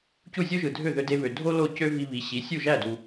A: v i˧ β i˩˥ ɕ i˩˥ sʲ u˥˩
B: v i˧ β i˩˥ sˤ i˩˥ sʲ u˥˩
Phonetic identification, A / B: A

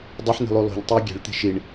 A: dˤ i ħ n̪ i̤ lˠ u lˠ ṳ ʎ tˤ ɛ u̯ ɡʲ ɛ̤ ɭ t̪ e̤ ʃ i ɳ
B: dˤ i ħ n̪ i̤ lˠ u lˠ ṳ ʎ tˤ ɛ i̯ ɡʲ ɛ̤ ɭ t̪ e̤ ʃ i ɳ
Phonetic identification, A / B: A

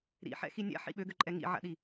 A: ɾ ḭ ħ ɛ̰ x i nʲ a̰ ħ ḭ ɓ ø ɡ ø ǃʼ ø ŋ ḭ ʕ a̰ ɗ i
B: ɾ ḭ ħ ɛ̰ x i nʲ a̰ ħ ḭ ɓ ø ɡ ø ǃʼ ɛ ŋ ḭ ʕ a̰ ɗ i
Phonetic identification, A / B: B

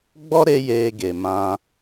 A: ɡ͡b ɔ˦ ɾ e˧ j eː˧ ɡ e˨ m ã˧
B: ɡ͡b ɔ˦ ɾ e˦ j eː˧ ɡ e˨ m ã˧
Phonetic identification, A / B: B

